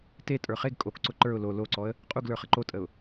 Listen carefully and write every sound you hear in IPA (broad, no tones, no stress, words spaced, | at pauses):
te tʼə˞χeɡ kʼokǀʊ ǃə˞ʊ̯ lo loǀɔə̯ | qʼuɡlə˞ χəǃotʼəʊ̯